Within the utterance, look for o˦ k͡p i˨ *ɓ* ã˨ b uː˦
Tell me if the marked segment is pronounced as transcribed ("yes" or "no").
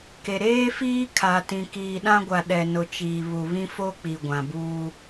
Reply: no